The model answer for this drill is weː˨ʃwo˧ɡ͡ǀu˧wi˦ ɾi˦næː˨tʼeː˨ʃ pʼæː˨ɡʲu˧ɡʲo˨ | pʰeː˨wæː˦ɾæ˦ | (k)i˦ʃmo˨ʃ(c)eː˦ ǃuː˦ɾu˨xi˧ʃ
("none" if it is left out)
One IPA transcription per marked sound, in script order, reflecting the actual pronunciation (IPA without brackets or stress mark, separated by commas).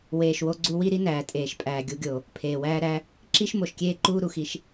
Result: ǁ, kʲ